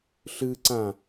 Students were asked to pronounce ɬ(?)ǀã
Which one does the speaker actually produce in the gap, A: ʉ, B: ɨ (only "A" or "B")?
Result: B